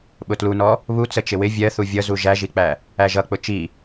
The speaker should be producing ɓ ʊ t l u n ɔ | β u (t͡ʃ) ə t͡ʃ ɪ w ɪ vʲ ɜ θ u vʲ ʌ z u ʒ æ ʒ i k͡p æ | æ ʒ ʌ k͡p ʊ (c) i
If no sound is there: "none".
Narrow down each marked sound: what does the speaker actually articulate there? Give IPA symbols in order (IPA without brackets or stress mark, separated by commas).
t͡s, t͡ʃ